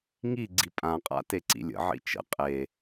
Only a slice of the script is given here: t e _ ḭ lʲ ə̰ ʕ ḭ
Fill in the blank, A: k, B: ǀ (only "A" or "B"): B